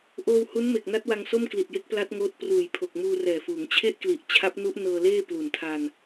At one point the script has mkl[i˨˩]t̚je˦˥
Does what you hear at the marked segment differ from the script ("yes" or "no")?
no